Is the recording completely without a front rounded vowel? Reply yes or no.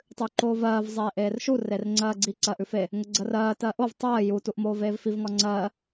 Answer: yes